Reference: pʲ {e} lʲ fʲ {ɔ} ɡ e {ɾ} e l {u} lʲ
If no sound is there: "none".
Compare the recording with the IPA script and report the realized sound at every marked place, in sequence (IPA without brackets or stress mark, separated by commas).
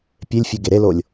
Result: e, o, ɾ, o